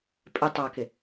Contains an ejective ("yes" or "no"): yes